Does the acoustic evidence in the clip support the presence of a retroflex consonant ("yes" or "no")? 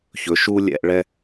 yes